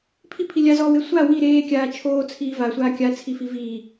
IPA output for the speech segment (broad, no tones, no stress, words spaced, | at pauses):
pʰipʰi lʲazɔːwe sʷa wi ɾeːkʲaː t͡ʃʰoːt͡sʰiː vasʷaː kʲat͡sʰifi viː